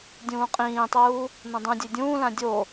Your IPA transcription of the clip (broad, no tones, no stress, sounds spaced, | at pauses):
dʲ ũː qʼ ĩː tˤ uː | n õ dˤ ũ dʲ e dʲ ũː l ã dʲ o